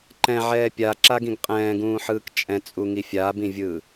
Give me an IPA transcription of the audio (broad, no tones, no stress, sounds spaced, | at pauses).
ǃ ɛ̃ ʕ ɛː pʲ a ǁ a ɡ ĩ ɡ qʼ ɛ̃ː ɡ ũː ħ ɯː k t͡ʃʼ ɛ̃ t͡sʼ u ŋ i fʲ a b ĩ vʲ ɯː